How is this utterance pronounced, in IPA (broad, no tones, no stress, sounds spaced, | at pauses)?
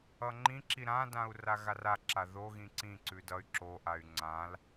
ʌ ŋ͡ǃ ĩ ǁ i ɾ ã d ã u̯ r a ɣ a r a ǁ a ð o ɣ ĩ ǀ ĩ ǀ ʉ d ʌ y̯ ǁ o ʔ a y̯ ŋ͡ǀ ã l